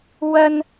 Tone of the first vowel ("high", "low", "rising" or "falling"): high